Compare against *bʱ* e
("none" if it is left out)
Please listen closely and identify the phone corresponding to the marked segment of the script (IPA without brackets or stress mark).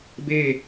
b